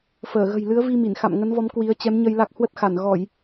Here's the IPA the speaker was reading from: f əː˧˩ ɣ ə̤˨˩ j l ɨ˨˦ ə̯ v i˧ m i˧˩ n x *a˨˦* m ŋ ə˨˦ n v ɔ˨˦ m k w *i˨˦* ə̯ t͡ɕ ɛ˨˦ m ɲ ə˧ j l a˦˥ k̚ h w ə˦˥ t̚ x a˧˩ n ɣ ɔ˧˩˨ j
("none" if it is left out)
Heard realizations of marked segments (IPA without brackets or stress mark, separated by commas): a̰˧˨, i˨˦